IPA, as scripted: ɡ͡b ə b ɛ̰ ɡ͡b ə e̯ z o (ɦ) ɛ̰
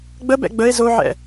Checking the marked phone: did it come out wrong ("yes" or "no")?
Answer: yes